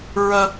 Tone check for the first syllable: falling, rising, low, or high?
high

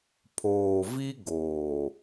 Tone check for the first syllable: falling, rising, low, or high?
low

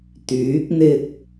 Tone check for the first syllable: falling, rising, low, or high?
rising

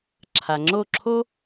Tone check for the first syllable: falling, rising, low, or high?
low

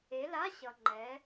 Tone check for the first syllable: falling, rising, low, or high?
rising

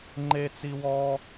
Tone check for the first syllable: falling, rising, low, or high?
high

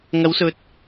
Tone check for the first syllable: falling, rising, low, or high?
rising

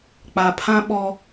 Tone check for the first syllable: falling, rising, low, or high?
low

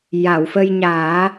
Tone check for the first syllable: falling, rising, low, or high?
low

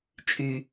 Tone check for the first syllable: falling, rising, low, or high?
low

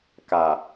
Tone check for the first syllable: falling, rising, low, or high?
low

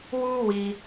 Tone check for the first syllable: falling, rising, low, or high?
high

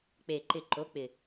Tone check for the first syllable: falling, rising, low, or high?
low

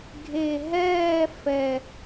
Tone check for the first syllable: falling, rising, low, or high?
low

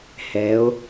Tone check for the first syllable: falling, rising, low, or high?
rising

